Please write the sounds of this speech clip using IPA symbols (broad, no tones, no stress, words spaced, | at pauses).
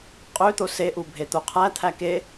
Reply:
qʼøt̪o seʔu bʱet̪oqʰæ t̪ʰæke